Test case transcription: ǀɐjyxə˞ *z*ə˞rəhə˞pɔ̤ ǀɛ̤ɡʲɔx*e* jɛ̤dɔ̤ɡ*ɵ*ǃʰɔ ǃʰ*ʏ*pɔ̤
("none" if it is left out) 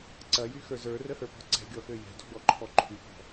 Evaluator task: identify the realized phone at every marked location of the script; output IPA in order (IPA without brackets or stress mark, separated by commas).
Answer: z, ø, ɔ, y